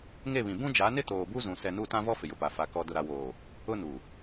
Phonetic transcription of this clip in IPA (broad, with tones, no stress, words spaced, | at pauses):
ŋe˦˨βĩ˨ bũ˦d͡ʒa˨˦nɪ˦ toː˨bu˦zũ˨ sɛ˨nu˦˨ tã˦vɔ˦ fɪ˨jʊ˨pa˨ fa˨ kɔ˨ dʊ˨ɾa˨woː˨ | ʊ˦nu˨